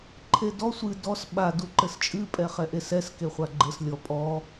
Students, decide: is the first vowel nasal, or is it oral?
oral